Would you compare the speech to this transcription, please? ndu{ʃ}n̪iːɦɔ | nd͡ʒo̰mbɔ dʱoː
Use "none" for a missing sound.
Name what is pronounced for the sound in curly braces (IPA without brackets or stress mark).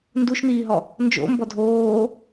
ʃ